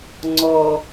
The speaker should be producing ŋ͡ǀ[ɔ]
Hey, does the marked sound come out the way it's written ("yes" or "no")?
yes